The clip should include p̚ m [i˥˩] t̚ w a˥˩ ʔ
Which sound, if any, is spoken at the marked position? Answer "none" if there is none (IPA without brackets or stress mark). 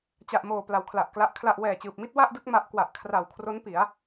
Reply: i˥˩